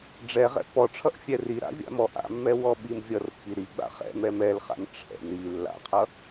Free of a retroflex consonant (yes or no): no